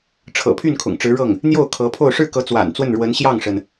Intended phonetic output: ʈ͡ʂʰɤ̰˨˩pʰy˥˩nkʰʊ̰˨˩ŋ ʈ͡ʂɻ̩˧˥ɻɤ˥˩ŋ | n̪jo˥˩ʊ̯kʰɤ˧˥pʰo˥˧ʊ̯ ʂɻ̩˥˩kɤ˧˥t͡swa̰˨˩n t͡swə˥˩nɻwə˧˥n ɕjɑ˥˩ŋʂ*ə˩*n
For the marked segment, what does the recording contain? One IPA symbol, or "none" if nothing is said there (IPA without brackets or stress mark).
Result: ə˩